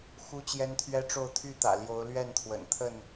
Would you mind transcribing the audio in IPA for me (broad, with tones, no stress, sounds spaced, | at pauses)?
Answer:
x u˦ t͡ɕ j ɛ˦ n t̪ʰ ɥ ɛ˦ ʈ͡ʂ o˥˨ ʊ̯ t̪ʰ y˥˨ t̪ ä̰˨˩ l j o˨˦ ʊ̯ l ɥ ɛ˥˨ n t̪ʰ w ə̰˨˩ n t̪ʰ ə˥˨ n